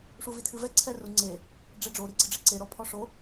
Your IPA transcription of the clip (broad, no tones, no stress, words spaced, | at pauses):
ʂuvitʰɨvɛ ǀʰɛru ŋ͡ǀe | ɖ͡ʐeɖ͡ʐo ɾiɡ͡ǀɨɖ͡ʐeǀe ɾɔpʰɔʂo